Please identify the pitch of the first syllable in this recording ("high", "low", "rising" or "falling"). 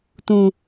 low